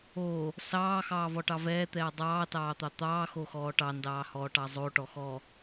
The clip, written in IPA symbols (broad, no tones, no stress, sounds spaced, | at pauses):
o | s ɑː x ɑː v ɔ ʈ ɑ v ɛː t̪ ɛː dˤ ɑː t ɑː t̪ ɑ t̪ ɑː x o x ɔː ʈ ɑ n d ɑː h ɔː ʈ ɑ zˤ o ʈ ɔ x ɔ